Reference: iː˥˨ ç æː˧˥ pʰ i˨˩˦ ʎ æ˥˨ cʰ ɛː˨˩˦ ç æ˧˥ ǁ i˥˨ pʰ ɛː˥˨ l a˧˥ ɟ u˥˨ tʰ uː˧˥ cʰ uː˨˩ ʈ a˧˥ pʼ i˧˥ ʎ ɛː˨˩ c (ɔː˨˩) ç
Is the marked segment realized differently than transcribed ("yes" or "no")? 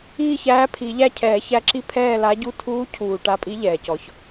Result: yes